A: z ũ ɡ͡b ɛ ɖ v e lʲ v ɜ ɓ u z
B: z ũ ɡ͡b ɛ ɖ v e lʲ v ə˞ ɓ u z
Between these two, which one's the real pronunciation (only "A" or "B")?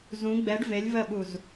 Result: A